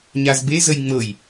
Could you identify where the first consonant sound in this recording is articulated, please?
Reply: palatal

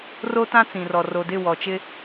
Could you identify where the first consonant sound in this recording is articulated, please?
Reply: alveolar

